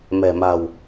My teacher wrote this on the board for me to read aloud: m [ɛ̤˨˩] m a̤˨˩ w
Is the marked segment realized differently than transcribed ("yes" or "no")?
no